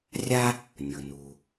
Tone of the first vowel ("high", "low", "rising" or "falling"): high